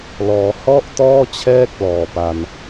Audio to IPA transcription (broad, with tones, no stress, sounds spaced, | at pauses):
l ɔː˩˦ h ɔ˥˩ ʔ t ɔː˥˩ t͡ɕʰ ɛː˥˩ k̚ l ɔː˨˩ p a˧ n